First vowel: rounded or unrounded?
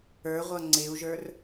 unrounded